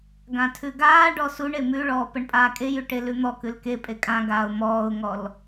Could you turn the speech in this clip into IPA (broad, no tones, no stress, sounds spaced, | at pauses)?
ɡ ã tʰ ʉ ɡ aː ɖ ɔ s u ɳ e m ʉ ɭ ɔː p ə ɳ pʼ aː kʼ e j ʉ ʈ e l ʉ n̪ ɔ k ʉ l k e pʼ e kʼ ã ɡ aː ʊ̯ m ɔː ʊ̯ ŋ ɔ l